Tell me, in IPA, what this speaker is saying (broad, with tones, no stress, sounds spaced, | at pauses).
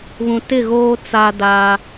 β ũ˨ t ɪ˦˨ ɣ oː˦ t͡s a˦ d a˦